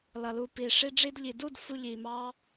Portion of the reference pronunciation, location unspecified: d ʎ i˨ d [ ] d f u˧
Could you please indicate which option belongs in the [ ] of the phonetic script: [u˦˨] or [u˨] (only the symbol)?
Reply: u˦˨